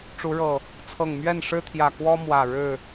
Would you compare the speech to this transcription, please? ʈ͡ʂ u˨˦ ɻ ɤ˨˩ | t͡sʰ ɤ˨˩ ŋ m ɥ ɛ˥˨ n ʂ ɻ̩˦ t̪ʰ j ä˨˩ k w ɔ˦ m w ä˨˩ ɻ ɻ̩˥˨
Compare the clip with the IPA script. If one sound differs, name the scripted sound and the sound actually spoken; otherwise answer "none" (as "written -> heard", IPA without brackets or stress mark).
none